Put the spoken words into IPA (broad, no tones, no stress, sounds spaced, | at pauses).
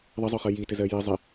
ðˤ ə zˤ ʊ χ ə j i t ɪ z ɜ j ɪ zˤ ɪ